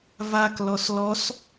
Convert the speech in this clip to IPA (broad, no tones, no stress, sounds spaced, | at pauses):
v a k l ɔ s l ɔ s